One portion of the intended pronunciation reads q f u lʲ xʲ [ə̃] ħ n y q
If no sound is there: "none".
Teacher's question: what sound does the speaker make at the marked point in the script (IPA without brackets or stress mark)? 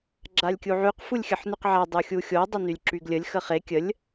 ə